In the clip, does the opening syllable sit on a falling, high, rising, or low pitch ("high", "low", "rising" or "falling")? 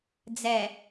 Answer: low